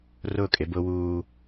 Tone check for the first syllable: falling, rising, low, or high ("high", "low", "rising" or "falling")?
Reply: falling